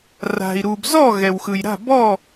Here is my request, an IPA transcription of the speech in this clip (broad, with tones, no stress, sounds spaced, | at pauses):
r a̤˩ i̯ ɾ u˩ b z ɔ˥˨ ɣ ɛ˩ w x ɯ˩ j ɾ a̤˥˨ b ɔ˥˨